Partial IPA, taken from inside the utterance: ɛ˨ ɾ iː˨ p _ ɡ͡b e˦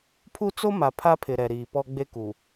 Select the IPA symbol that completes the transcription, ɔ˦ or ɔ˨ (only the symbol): ɔ˦